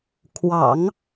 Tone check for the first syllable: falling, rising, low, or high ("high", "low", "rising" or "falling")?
low